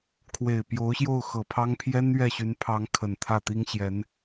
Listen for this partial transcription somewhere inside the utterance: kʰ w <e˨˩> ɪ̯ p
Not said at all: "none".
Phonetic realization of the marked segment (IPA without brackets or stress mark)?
e˨˩